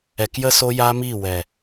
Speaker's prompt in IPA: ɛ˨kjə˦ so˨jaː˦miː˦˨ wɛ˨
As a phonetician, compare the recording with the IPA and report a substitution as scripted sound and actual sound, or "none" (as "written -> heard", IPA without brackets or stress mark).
o˨ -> o˦